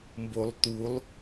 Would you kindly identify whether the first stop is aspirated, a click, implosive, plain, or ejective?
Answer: plain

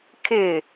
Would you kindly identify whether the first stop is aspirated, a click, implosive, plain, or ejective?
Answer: aspirated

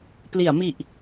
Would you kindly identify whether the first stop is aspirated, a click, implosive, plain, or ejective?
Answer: plain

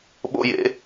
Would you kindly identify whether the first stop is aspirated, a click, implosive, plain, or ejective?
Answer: implosive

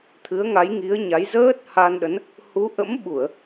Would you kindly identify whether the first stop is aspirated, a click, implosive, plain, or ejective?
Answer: aspirated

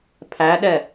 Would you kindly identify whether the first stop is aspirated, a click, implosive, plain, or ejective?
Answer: aspirated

